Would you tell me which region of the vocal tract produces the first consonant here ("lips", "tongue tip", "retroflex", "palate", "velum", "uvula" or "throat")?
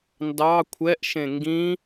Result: tongue tip